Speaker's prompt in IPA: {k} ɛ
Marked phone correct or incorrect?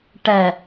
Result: incorrect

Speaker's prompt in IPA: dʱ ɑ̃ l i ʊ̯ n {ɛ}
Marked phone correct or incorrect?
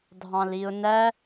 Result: incorrect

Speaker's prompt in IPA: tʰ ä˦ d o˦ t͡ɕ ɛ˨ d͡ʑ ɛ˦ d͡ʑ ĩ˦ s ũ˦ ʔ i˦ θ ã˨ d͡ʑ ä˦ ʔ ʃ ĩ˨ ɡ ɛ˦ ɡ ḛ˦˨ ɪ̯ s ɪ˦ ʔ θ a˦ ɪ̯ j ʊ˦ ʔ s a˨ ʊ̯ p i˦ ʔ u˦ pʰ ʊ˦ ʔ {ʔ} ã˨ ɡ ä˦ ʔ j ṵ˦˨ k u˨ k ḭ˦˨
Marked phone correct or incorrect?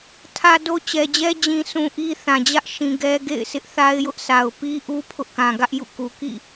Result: incorrect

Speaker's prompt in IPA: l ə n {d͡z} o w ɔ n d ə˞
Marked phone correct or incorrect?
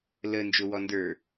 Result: incorrect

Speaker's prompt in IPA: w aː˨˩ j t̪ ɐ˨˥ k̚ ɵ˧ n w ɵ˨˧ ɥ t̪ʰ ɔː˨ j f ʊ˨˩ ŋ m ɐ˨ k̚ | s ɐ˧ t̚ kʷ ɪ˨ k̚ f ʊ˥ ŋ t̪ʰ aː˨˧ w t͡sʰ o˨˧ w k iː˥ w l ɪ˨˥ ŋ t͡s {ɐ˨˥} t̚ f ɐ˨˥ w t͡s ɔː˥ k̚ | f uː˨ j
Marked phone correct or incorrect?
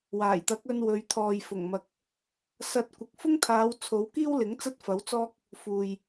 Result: incorrect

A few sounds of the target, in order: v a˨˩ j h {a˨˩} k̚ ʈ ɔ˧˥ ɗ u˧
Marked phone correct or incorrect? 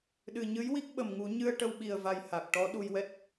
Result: correct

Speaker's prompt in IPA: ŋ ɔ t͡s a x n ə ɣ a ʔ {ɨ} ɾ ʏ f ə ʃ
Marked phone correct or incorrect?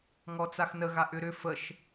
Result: incorrect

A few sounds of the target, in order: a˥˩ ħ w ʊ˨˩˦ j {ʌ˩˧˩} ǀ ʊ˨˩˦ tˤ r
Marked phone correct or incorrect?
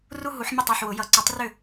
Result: incorrect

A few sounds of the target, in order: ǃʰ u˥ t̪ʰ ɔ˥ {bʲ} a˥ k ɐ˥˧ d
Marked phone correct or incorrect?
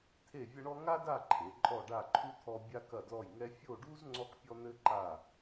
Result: correct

